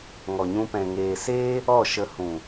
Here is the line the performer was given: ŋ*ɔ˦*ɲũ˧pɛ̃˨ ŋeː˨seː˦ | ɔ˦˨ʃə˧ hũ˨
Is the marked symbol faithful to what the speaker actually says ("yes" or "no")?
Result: no